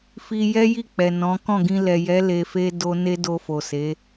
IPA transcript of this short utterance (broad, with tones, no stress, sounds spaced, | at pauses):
f i˧ j ɛ˦ j i˦˨ k͡p ɛ˨ n ɔ̃˨˦ k ɔ̃˦˨ ɡ ĩ˧ l ɛ˨ j ɛ˨˦ l e˧ f e˦ d o˦ n e˦ d o˧ f o˨ s e˨˦